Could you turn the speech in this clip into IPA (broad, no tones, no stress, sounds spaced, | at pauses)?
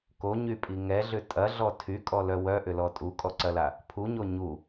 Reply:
k o ɲ y pʼ i ŋ ɛ ɮ ʏ tʼ ɐ ɮ ɔ tʰ y kʼ ɔ l œ w œ ʔ ʏ l ɔ tʼ u kʼ ɔ ǀ ɐ l a | pʰ u ɲ o ɲ u